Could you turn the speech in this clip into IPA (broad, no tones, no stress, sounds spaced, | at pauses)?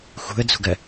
x ṳ ə̯ d͡z ṳ ɡ ɜ